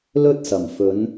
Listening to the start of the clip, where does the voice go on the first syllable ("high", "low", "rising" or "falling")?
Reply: high